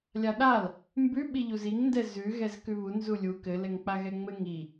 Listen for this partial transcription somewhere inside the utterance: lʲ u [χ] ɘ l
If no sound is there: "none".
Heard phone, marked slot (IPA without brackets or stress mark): k